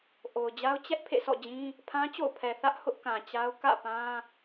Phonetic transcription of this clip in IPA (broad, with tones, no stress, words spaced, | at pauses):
ʔo˨ʊ̯d͡ʑa˦ʊ̯ t͡ɕɛ˦ʔ pʰḛ˦˨sɔ̰˦˨d͡ʑĩ˦ | pʰã˦t͡ɕo̰˦˨ʊ̯pʰɛ˨ θä˦ʔ hʊ˦ʔkã˨t͡ɕa˦ʊ̯ kä̰˦˨ pã˦